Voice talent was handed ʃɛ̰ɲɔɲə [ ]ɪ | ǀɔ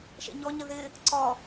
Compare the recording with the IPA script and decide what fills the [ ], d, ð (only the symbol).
ð